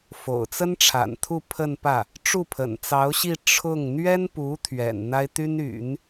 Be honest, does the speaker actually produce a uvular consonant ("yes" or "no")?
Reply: no